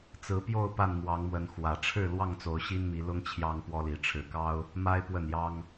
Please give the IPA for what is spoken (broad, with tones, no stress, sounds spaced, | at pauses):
t͡s ɹ̩˨˦ p j o˥˨ ʊ̯ p a˥˨ n m w ɑ˨˦ ŋ m w ə˨˦ n x w ä˨˩ ʈ͡ʂʰ ɻ̩˥˨ l w ɑ˥˨ ŋ t͡s o˨˦ ʊ̯ ɕ i˦ n m i˨˦ l ʊ˦ ŋ t͡ɕʰ j ɑ˦ ŋ p w ɔ˦ l i˨˦ ʈ͡ʂʰ ɻ̩˨˩ k ɑ˦ ʊ̯ | m a˦ ɪ̯ p w ə˥˨ n j ɑ˦ ŋ